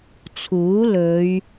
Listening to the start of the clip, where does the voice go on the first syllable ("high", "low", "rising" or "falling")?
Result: rising